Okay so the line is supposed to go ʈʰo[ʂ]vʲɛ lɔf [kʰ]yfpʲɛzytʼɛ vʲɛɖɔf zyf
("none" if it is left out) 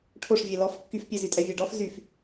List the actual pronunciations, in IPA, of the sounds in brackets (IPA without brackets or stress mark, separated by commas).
ʂ, kː